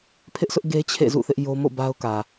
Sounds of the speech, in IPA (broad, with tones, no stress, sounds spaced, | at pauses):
pʰ ɪ˦ ʔ s ʊ˦ ʔ ɡ e˦ t͡ɕʰ ḛ˦˨ z ṵ˦˨ θ ɪ˦ ʔ j o˦ m o̰˦˨ b a˦ ʊ̯ k ä˨